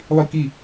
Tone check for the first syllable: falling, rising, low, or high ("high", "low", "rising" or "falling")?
falling